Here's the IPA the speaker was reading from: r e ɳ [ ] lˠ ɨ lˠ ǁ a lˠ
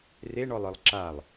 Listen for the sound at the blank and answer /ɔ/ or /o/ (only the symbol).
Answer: ɔ